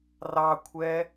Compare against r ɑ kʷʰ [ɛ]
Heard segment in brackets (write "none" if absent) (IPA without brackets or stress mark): ɛ